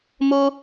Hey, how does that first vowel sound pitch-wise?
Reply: high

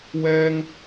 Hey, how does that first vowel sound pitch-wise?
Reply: high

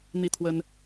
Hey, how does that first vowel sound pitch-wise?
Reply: falling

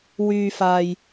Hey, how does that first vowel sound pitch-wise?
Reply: high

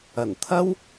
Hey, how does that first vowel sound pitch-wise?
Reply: low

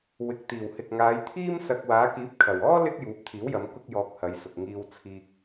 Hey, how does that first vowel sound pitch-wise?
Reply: low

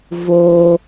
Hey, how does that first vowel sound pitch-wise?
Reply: high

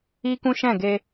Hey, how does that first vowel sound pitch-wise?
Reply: high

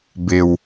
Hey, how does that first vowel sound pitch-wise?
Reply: low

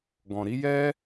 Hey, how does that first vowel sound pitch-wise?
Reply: low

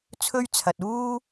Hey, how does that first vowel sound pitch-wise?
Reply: high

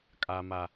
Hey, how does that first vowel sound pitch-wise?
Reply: low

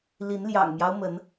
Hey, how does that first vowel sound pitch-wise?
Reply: rising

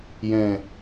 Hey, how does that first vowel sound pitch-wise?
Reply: low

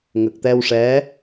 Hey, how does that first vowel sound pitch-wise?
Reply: low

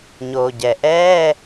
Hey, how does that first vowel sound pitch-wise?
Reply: low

